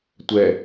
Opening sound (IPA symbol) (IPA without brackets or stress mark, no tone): tʷ